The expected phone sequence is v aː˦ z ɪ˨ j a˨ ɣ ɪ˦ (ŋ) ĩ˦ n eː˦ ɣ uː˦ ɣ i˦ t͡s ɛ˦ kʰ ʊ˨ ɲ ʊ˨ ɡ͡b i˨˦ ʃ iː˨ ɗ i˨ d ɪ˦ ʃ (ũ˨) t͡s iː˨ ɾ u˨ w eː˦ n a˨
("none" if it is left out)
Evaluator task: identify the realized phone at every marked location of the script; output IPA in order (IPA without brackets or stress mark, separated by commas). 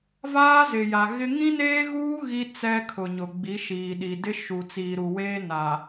ŋ, u˨